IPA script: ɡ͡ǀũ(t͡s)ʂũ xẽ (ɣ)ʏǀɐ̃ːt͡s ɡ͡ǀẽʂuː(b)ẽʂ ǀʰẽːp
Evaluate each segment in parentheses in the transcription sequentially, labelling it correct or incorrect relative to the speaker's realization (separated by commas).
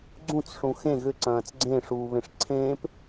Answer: correct, correct, incorrect